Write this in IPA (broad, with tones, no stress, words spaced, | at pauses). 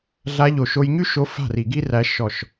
ɮa˧ʎo˨ ʃo˧jɲy˦ʃo˧ fa̤˦˨ri˨ɡi˦ræ˧ ʃɔ˨ʃ